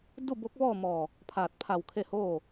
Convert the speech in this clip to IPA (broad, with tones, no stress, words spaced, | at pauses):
du˥˨bo˧˥k̚ʋɔː˥˨ mɔː˧˩ | pʰaː˧˩t̚pʰa˧˩wkʰe˥˨ hoː˥˨